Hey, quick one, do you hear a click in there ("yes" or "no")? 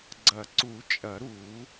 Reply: yes